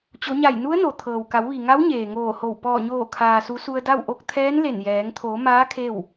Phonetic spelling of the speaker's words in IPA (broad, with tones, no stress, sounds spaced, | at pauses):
t͡ɕ o˩˧ ɲ a˧˩ j n u˧˥ ə̯ n o˩ t̪ʰ ɤː˩ w k a˩˧ w ʋ i˩ ŋ a˧˥ w ɲ eː˩ ŋ oː˧˩ h o˧˩ w p ɔː˧˩ ɲ oː˧˩ kʰ aː˩ s u˩˧ s u˧ ə̯ d a˥˨ w ʔ o˥˨ k̚ t̪ʰ ɛː˧˥ n l e˧˩ n j ɛː˩˧ ŋ t̪ʰ o˩˧ m aː˧˥ kʰ e˥˨ w